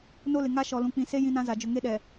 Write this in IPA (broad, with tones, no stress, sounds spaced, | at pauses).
n o˦ l ɪ˨ ŋ a˦ ʃ ɔ˨ l ũ˨ k͡p ĩ˨ s e˦ j ĩ˦ n ã˦ z a˨ d͡ʒ ʊ˨ ŋ e˦ ɗ ɛ˨